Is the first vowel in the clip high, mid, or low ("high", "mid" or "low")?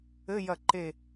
mid